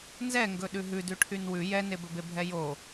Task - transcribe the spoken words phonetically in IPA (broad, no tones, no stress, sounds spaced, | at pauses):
n z ɛ ŋ ɡ ɵ ɗ ʉ ɦ ʉ d ʉ ʈʰ y n w ʉ j ɛ n e b ɵ b e bʱ ɛ j o